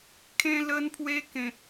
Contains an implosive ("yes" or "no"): no